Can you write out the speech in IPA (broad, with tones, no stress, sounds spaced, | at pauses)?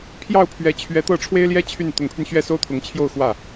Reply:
pʰ j ɑ˥˩ ʊ̯ pʰ ɥ ɛ˧˥ t͡ɕʰ ɥ ɛ˧˥ t̪ ɤ˥˩ ʈ͡ʂʰ w e˥ ɪ̯ l j ɛ˥ t͡ɕʰ y˥˩ n t̪ ʊ˧˥ ŋ pʰ y˧ n ɕ ɥ ɛ˥˩ s o˥ ʊ̯ t̪ʰ ʊ˧˥ ŋ t͡ɕʰ j o˥˧ ʊ̯ x w ä˥˩